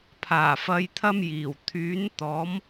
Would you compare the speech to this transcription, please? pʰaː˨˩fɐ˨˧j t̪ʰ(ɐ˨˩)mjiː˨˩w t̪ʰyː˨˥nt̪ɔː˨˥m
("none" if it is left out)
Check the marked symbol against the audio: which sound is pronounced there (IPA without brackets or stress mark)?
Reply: ɐ˥